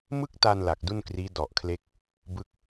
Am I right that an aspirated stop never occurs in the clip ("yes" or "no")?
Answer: no